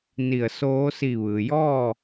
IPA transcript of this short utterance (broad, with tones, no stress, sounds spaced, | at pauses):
n i˧˩ ə̯ s oː˧˥ s i˧˩ ʋ ɯː˩ j ɔː˥˨